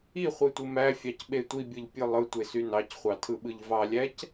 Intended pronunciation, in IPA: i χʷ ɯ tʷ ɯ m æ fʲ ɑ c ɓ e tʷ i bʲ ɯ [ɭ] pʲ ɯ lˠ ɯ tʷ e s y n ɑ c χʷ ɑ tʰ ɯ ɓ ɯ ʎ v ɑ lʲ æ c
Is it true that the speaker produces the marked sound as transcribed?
no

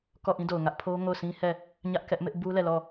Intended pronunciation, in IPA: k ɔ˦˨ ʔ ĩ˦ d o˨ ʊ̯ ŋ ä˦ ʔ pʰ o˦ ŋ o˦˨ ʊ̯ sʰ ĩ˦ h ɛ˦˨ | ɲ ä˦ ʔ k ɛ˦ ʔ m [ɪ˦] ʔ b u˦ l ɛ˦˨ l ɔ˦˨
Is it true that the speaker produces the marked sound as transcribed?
yes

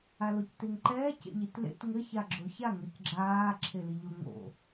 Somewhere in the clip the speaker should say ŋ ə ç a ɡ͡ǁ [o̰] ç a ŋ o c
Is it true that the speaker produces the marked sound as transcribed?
no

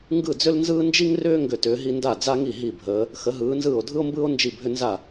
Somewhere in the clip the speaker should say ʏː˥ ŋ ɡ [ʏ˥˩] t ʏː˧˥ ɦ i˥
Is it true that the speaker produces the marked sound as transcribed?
yes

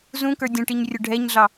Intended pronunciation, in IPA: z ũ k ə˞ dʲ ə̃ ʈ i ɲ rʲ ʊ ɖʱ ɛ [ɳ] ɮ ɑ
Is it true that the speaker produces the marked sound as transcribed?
no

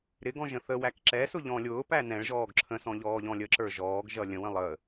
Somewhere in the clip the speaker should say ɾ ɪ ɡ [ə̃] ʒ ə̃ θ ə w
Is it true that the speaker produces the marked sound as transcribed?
no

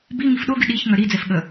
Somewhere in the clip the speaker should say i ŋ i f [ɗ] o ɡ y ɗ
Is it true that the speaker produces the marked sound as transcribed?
yes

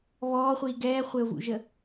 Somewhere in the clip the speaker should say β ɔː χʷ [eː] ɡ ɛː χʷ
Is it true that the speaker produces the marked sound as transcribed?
no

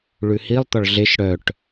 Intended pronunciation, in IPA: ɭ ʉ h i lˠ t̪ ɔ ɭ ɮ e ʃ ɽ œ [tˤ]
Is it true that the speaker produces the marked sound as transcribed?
no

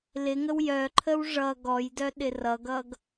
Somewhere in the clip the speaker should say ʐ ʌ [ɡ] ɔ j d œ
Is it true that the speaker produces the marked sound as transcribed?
yes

